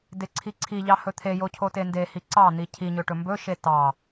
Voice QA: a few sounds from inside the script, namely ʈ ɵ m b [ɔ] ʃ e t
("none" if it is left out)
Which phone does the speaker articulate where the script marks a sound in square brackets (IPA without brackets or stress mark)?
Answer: ɵ